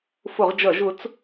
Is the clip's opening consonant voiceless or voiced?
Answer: voiceless